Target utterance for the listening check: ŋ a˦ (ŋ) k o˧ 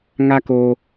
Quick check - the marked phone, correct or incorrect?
incorrect